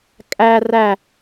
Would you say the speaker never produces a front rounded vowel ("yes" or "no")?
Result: yes